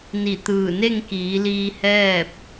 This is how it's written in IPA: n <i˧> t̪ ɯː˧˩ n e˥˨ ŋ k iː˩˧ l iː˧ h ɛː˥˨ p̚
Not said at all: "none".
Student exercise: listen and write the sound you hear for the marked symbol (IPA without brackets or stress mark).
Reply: i˧˩